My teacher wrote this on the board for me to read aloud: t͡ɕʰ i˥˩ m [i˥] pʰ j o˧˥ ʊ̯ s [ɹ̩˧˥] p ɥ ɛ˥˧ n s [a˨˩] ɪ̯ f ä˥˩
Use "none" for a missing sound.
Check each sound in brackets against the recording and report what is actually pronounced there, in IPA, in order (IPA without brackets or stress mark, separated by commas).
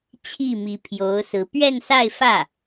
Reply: i˧˥, ɹ̩˧˥, a˥˧